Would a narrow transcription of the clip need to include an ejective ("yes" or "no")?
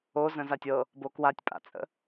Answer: yes